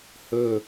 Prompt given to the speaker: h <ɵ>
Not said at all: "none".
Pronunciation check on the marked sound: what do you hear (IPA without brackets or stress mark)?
ɵ